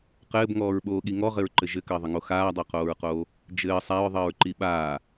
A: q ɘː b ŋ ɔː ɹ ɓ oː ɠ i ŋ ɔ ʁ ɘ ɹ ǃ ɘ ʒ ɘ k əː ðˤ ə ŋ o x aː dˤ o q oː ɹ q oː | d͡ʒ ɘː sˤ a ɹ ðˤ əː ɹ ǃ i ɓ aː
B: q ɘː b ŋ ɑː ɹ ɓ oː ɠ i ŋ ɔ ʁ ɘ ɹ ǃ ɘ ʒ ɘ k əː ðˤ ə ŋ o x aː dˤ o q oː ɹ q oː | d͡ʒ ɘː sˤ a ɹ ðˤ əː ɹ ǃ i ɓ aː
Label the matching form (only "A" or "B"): A